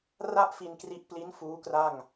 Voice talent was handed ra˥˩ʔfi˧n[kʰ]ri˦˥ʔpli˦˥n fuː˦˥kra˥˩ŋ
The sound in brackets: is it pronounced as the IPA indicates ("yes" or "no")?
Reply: no